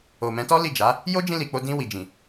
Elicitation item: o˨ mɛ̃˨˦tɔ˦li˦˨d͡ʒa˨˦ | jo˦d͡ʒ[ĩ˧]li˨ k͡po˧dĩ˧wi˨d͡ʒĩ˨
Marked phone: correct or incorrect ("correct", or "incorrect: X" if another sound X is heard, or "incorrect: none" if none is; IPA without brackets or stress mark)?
correct